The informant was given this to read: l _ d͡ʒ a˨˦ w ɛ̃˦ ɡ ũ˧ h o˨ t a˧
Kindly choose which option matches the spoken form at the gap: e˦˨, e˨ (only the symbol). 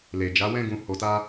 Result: e˨